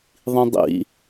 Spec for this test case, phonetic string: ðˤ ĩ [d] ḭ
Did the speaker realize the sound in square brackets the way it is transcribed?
no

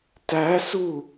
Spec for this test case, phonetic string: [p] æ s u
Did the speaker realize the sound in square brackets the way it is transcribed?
no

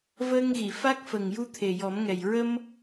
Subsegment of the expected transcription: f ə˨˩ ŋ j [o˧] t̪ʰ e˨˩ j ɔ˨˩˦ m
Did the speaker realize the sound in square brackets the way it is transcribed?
no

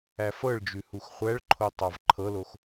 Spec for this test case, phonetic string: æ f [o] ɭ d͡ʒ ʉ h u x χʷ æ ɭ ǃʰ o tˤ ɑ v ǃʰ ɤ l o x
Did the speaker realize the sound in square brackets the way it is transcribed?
no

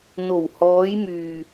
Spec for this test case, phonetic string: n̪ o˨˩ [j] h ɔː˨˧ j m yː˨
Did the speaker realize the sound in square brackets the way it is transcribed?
no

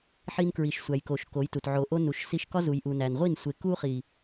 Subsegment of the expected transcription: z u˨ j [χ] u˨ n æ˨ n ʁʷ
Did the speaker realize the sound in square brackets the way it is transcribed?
no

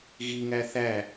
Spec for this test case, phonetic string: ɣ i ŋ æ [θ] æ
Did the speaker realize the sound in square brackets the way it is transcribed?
yes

